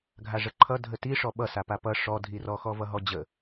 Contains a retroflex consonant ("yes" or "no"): yes